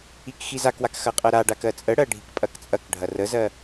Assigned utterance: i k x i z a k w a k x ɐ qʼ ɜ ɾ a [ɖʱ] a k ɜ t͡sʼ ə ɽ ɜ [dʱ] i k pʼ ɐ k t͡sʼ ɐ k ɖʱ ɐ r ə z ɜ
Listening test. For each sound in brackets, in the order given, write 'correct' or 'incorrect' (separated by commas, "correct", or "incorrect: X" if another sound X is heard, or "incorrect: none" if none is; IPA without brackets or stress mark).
incorrect: ɖ, incorrect: ɖʱ